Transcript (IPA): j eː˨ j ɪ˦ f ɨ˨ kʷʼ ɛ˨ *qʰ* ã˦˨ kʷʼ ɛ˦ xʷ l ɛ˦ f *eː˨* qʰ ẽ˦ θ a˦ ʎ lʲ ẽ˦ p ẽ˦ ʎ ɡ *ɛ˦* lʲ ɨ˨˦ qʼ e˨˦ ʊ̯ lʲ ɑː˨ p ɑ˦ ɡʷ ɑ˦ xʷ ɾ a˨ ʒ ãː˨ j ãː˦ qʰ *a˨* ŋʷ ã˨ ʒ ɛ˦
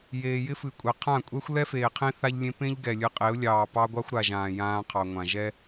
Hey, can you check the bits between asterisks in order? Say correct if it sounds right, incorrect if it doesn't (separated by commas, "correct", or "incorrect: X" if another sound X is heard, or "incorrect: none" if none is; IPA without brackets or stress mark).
correct, correct, incorrect: ɛ˨, incorrect: ɑ˨